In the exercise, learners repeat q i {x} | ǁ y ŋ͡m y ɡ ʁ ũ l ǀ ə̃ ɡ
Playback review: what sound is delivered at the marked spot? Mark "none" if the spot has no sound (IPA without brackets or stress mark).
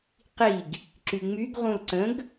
ɡ